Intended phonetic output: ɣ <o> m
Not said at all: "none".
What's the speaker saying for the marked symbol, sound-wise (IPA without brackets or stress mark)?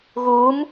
u